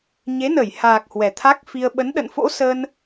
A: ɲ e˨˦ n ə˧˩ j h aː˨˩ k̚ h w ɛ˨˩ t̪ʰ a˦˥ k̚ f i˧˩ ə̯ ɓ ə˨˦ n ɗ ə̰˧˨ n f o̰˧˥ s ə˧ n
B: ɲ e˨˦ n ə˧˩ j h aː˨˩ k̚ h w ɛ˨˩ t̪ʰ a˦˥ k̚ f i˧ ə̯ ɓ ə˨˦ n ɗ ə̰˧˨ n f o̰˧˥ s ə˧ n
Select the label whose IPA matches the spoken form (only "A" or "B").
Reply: B